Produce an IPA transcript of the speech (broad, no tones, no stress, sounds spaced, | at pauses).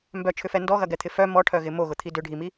m b œ t͡ʃʰ ʏ f ɛ n d ɔ ɣ ɐ ɡ ɛ t̪ʰ ɪ f œ m ɔ ʈʰ œ ɣ ɪ m o ɣ ʊ t̪ʰ i d ʏ ɖʱ i m i